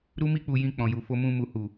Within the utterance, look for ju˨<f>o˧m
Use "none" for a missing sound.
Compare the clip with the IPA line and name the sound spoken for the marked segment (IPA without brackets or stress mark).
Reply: f